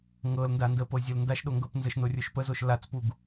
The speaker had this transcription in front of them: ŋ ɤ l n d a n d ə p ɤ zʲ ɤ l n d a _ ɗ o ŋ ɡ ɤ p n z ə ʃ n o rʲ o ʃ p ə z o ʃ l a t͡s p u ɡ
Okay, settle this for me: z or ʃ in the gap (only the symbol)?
ʃ